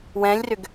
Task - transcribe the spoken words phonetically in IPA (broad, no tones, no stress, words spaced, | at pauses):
wɛ̃lʲrʏɡ